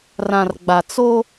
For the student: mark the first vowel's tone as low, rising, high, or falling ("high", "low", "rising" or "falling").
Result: low